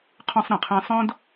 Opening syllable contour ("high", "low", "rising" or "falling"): high